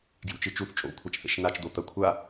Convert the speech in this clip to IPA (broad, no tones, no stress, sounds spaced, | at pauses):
ɡ j ṵ t͡ʃ ɨ t͡ʃ u θ t͡ʃʼ o̰ kʷʰ a t͡ʃ θ ḛ ʃ n a t͡ʃ d̪ o t̪ ɐ kʷʰ a